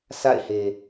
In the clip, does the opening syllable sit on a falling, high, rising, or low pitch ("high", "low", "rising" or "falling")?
falling